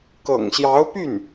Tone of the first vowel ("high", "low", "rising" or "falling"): low